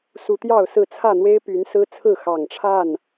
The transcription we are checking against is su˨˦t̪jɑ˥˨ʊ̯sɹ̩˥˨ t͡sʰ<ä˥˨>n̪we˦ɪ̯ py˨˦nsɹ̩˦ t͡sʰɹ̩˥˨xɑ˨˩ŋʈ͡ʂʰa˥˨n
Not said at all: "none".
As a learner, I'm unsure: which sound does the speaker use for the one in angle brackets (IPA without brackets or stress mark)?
ä˥˨